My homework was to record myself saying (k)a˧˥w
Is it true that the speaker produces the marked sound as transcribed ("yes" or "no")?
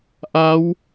no